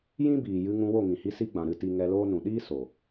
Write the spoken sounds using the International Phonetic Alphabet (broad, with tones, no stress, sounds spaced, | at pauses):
j ĩ˦ b iː˨ j ɨ˧ ŋ ũ˧ w o˦˨ ŋ ĩ˨ h i˧ s i˦ ɡ͡b ã˨ ɾ ɨ˧ t i˧ ŋ ɛ˧ l oː˦ n ũ˨ ɗ iː˦ s o˨